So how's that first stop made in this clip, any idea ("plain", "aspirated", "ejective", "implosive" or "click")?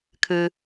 aspirated